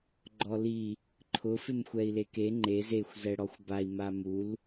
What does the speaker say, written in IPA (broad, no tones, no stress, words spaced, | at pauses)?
ɡ͡ǃɔli | ǃʰʊ fɪmxʷɛi̯leke ŋ͡ǃez exʷ zɛɽɔxʷbai̯ mamul